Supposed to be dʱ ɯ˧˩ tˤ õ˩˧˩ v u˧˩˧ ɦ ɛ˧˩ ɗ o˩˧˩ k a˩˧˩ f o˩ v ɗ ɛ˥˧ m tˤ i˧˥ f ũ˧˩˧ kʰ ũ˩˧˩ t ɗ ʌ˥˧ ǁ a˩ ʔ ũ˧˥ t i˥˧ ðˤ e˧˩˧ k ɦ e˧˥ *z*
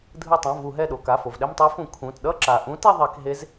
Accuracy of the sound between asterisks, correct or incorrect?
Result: correct